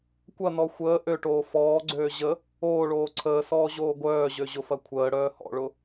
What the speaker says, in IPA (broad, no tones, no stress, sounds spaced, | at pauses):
kʷ ɐ n ɔ xʷ əː ʔ ø ʈ oː f ɔː ɡ͡ǀ øː ʑ ə | oː ɭ oː ǀʰ əː s ɔː ʑ oː ɡʷ œː ʑ ø ʑ ʊ f ɐ kʷʰ əː ɽ œː h ɔ̰ ɭ ʊ